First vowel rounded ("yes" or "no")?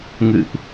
no